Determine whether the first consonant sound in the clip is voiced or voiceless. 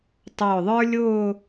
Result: voiceless